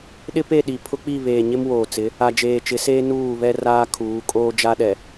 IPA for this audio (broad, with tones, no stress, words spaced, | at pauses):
ɗɪ˦pe˦˨ɗi˨ pʰʊ˦k͡pi˦˨βeː˨ɲɪ˦m woː˨t͡sɪ˨˦ | a˨d͡ʒeː˨t͡ʃɪ˨˦seː˦ nuː˦˨ βɛ˦raː˦kʰuː˨˦kʼoː˦ d͡ʒa˦ɗɛ˨